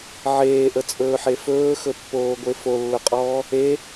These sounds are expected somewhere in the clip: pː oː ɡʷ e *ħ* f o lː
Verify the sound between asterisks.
incorrect: none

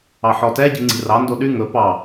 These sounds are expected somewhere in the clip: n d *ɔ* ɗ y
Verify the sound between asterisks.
incorrect: o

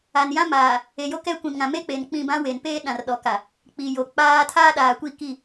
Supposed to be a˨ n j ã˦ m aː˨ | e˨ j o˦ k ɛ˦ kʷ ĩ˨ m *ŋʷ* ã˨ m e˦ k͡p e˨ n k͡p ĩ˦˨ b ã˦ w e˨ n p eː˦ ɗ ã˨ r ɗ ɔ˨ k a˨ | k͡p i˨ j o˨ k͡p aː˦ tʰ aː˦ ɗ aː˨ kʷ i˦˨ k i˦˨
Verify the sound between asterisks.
incorrect: ŋ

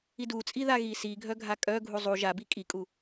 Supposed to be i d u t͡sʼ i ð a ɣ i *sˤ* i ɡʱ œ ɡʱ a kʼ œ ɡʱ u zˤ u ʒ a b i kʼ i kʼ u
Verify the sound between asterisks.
incorrect: s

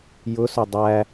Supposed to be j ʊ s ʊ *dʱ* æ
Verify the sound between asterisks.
incorrect: dˤ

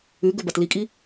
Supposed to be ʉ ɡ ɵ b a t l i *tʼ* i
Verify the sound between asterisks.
incorrect: kʼ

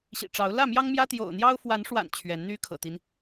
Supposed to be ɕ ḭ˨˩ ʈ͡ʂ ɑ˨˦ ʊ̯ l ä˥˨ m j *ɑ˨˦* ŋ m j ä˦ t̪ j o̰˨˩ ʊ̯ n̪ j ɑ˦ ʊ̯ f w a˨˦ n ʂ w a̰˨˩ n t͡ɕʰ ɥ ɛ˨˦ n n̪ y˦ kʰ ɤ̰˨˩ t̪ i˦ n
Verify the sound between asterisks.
incorrect: ɑ˦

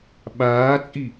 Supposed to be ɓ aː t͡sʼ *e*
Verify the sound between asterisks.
incorrect: i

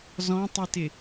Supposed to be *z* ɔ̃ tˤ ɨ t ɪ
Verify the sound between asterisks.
correct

